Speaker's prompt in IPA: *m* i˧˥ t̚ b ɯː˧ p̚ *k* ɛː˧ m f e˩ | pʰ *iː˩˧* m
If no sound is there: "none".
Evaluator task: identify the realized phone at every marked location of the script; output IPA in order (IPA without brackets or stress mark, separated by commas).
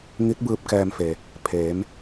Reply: ŋ, k, eː˩˧